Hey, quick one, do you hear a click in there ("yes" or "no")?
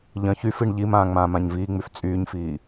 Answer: no